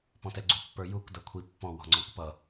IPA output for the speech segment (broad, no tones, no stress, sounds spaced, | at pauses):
p ɔ̃ t ɛ ɡ͡ǀ u pː ə˞ j u k d ʌ kʷʰ i pː ɔ̃ w ɔ̤ ŋ͡ǀ ɔ̃ k p ʌ